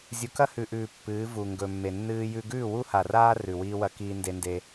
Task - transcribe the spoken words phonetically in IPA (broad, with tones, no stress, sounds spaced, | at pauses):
zʲ u˨ k ɐ˦ h ʉ˨ ʔ ʉː˨ pː ɨː˨˦ v u˨ ŋ ɡ ɵ˨ mː e˨ nː ɨː˦ j ʉ˦ ɡ ʉː˦˨ w u˦ h a˨ r aː˦ r ʉ˨ w iː˦ w ɐ˦ k iː˦ n d e˦ n d e˦